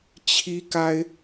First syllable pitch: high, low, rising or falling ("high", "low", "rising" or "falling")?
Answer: high